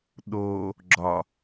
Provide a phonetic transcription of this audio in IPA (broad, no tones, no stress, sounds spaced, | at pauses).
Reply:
ɗ o | ɡ͡ǁ ɒ